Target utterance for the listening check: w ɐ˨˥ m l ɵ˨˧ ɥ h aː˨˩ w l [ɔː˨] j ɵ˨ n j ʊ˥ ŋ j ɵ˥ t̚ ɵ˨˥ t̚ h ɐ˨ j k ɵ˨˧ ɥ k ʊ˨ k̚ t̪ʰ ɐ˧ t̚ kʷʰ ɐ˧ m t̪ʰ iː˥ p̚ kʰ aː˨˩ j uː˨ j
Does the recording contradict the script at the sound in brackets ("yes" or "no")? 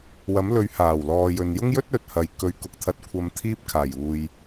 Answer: no